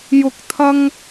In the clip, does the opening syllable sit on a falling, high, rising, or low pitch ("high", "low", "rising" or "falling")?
rising